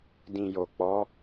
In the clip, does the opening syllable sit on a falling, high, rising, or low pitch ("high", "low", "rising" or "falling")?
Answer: low